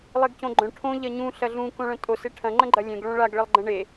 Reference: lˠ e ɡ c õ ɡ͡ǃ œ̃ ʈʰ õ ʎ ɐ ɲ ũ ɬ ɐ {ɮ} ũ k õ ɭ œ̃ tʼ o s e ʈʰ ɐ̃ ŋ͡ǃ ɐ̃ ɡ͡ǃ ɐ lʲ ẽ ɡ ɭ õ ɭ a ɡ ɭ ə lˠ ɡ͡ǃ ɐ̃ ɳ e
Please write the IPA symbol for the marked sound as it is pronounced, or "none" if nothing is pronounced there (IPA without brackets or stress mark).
ɮ